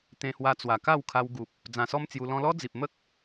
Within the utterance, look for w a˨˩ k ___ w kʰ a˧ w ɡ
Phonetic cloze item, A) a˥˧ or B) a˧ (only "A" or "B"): A